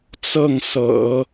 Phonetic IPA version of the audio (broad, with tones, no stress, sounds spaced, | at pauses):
t͡s ɤ˥˩ ŋ s ɤ̰˨˩˦